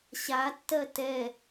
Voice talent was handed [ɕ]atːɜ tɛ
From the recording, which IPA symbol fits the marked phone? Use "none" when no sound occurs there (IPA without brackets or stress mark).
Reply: ɕ